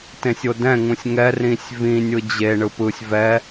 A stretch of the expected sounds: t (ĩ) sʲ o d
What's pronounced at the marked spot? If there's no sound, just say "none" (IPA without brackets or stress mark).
ẽ